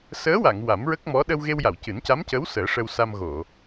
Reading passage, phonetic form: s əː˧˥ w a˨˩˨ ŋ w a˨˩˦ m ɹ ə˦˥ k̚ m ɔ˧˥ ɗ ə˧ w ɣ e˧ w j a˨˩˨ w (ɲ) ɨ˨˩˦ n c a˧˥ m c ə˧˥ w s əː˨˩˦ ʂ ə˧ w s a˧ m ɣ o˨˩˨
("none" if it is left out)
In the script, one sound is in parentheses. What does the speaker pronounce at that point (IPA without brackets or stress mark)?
c